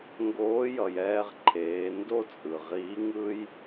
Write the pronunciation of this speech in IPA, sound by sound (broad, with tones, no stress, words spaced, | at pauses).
ŋɡoː˧˥ jʌ˩jɛː˧ʁǃʰeː˩˧ ndo˥t͡sʼɯ˩ ʁiː˧˥ŋɯː˥j